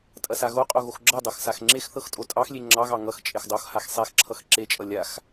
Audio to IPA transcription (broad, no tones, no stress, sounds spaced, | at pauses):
tʼ ɐ s a ɣ o qʼ o ɣ o x ɡ͡ǁ ɤ dˤ ɤ x s a x ŋ͡ǁ e x θ ɤ x tʼ o tʼ ɑ x lʲ e ŋ͡ǁ ɑ ɣ ɑ ŋ ʌ x t͡ʃʼ e x dˤ o x h a x sˤ e x ǁʰ ʌ x ǁ e t͡ʃʼ ʌ lʲ a x